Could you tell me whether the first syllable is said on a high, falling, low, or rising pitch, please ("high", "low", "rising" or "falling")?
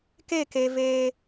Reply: falling